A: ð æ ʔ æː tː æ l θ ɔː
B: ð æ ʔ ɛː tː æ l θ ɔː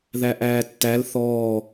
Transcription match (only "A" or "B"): A